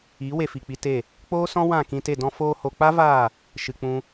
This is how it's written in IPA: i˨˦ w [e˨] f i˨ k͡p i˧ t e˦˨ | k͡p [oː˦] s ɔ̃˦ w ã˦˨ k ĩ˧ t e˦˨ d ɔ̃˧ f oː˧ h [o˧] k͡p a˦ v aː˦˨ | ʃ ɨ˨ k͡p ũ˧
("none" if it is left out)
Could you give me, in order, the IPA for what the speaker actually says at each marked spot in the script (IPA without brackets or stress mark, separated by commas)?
e˧, oː˦, o˧